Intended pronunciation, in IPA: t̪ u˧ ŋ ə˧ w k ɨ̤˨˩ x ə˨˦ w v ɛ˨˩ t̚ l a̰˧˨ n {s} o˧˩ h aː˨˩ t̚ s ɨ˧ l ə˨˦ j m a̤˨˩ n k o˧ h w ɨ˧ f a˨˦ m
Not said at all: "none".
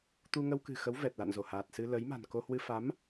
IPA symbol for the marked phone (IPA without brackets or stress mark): z